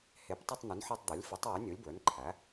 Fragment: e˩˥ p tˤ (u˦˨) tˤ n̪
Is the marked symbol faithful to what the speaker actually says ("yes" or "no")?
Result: yes